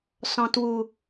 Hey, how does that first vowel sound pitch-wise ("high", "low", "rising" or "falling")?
low